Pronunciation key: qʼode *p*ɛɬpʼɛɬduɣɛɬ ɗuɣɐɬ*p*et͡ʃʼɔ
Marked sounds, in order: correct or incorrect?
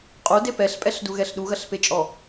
correct, correct

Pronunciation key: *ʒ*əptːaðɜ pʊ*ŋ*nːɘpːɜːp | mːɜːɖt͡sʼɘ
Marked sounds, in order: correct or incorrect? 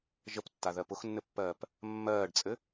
correct, incorrect

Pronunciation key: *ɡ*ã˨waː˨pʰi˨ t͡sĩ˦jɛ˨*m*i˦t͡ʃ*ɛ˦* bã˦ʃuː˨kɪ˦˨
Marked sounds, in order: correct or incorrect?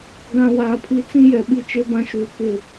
correct, incorrect, incorrect

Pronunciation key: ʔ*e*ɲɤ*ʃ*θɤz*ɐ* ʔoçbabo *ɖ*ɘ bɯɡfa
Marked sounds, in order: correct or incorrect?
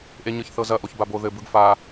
correct, incorrect, correct, incorrect

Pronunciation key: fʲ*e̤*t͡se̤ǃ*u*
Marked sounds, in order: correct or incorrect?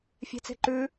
correct, incorrect

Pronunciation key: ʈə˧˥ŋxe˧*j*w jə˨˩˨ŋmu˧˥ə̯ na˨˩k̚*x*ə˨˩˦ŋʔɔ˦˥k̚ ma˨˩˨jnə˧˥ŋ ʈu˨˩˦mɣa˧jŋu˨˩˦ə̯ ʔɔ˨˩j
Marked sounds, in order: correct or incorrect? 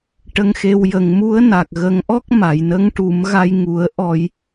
incorrect, incorrect

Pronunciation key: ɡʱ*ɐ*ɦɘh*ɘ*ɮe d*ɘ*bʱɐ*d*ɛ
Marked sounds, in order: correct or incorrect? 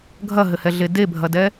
correct, incorrect, incorrect, correct

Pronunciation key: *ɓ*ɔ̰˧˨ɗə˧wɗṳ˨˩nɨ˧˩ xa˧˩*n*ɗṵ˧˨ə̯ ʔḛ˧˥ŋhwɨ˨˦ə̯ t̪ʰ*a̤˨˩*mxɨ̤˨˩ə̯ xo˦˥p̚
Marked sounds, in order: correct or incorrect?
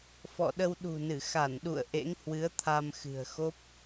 incorrect, correct, incorrect

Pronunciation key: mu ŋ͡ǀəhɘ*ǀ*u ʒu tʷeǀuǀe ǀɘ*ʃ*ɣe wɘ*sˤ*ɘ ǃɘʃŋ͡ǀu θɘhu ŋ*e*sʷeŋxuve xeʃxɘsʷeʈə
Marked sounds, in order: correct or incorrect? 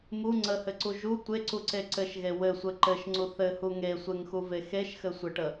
correct, correct, incorrect, correct

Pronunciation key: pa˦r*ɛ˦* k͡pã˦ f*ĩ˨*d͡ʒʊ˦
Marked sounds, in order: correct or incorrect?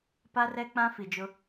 correct, incorrect

